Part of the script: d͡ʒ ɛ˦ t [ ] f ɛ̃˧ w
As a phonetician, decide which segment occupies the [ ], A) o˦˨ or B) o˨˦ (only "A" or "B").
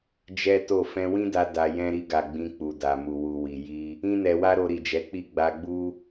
A